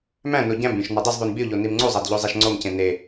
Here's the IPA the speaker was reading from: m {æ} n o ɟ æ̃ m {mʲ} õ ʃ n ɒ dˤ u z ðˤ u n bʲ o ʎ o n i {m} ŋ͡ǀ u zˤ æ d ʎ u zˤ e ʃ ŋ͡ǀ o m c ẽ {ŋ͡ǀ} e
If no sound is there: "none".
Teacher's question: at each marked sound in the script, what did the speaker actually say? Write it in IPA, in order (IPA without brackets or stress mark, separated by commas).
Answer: æ̃, bʲ, m, n